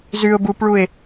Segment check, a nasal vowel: absent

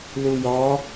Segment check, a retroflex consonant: absent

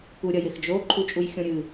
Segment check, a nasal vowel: present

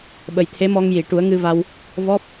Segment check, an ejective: absent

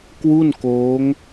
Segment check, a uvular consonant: absent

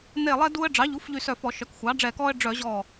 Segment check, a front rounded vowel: present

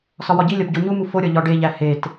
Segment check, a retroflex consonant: present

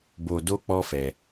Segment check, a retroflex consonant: absent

